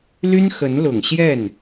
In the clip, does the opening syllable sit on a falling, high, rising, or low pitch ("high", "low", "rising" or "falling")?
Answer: high